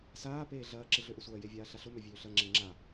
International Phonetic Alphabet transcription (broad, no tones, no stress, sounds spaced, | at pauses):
s aː p eː ɮ ɐː ǁ ɪ ɮ ø ʔ ʊ sʷ ɐː j e vʲ aː ɬ a ɬ ʊ m ø vʲ øː ɬ ɐ ŋ͡ǁ e ŋ͡ǁ a